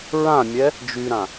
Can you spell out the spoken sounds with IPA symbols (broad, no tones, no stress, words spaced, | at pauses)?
ɹãmʲɛ | d͡ʒyɾã